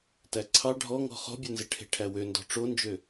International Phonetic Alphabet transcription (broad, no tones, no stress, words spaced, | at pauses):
tæǀʰɑ ɖʱɔŋɔ̤ χɔ̤bʲønze ʈʰe̤ʈʰæwøndɔ̤ ʈ͡ʂond͡ʒø